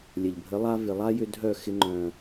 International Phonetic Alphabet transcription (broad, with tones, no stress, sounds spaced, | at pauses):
lʲ ɐ˨ ʎ bʱ ə˨˦ lˠ a˦ v ɪ˨ lˠ a˦ j ʏ˧ dʱ œ˦˨ x ɪ˧ ŋ͡ǃ œ̃˨